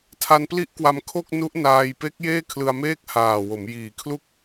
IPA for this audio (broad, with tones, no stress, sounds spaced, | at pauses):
tʰ a˧ n p l i˦˥ ʔ k w a˧ m kʰ o˥˩ k̚ n u˦˥ ʔ n aː˧ j p e˦˥ k̚ j eː˥˩ kʰ l ɯ˧ a̯ m eː˥˩ k̚ h aː˨˩ w o˩˦ m j iː˩˦ kʰ l u˦˥ k̚